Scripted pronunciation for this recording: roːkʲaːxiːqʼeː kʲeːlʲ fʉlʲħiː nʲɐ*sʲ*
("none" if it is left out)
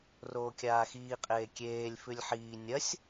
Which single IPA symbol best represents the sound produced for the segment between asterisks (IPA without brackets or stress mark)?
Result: sʲ